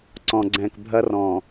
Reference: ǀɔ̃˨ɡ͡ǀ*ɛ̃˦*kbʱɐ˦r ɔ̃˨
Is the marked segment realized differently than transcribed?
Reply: yes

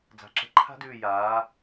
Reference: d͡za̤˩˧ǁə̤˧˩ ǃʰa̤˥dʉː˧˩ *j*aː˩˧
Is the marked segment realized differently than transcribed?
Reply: no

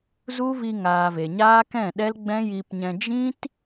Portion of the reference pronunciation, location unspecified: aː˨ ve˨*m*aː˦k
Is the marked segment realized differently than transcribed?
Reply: yes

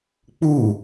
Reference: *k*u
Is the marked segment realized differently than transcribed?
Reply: yes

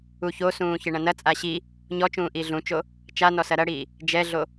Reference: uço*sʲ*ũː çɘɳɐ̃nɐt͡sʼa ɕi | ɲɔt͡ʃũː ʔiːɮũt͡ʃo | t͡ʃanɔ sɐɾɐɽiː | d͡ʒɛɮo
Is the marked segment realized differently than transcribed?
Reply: yes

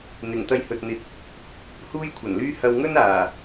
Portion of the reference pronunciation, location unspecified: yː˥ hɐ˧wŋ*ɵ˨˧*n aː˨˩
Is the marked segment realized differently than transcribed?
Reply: yes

